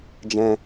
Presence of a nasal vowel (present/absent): present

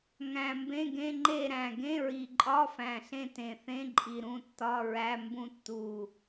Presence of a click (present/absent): present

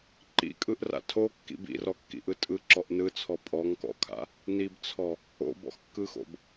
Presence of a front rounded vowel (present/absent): absent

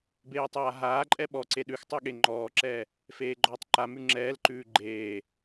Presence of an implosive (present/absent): present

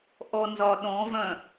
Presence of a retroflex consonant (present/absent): absent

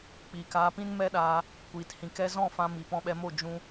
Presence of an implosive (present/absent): present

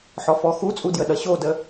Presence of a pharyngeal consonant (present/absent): present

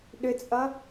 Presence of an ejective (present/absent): present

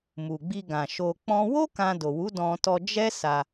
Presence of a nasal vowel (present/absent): present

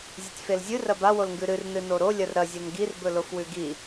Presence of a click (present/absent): absent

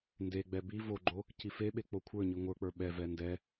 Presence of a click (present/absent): present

